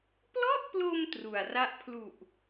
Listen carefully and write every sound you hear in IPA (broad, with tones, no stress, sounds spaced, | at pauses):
p l ɔ˥˩ ʔ p l o˧ m t r u˨˩ a̯ r a˥˩ ʔ pʰ l u˨˩ ʔ